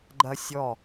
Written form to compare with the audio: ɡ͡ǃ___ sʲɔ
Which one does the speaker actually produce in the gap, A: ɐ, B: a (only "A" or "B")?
A